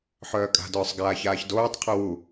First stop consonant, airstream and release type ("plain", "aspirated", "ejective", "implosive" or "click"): ejective